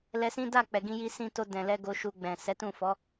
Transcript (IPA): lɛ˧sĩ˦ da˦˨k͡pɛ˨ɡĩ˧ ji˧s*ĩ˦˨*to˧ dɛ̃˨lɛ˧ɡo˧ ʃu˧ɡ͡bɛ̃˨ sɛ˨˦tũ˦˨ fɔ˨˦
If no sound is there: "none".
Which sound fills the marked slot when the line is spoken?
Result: ĩ˧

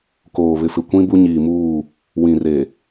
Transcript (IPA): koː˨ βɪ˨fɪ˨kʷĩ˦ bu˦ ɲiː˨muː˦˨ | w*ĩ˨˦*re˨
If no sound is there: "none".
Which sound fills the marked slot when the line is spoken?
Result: ĩ˨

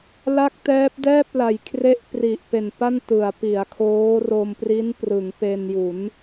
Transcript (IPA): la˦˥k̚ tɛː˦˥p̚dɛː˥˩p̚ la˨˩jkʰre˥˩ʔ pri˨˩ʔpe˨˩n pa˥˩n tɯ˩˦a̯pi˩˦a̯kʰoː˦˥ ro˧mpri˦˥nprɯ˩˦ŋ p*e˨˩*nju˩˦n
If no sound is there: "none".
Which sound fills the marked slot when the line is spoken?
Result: e˧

